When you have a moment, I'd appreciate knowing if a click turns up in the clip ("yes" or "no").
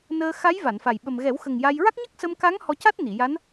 no